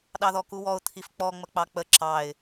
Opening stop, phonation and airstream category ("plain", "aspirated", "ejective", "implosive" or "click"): implosive